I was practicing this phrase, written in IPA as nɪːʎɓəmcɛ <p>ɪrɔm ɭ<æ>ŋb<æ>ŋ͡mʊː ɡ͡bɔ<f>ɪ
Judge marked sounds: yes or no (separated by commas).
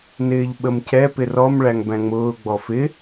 yes, yes, no, yes